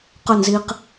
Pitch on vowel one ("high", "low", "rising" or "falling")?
falling